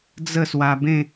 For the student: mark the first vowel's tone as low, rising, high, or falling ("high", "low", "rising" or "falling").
falling